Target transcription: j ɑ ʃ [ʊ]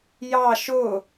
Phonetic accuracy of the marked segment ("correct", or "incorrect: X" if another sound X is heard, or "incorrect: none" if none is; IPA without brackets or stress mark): correct